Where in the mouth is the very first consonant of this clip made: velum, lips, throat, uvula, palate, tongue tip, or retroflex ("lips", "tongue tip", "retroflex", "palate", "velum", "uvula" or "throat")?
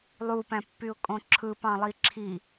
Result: tongue tip